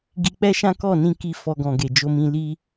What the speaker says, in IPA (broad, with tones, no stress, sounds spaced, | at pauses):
ɡ i˧ k͡p ɛ˦ ʃ ã˦ k ɔ˦˨ n ĩ˧ k i˧ f ɔ˧ ɡ ɔ̃˨ ɡ e˨ d͡ʒ o˧ m ĩ˧ l i˦